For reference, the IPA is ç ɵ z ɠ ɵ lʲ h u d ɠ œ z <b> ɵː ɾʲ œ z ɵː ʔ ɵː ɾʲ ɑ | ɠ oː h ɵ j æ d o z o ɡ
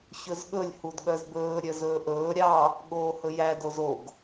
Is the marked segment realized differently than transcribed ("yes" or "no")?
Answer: no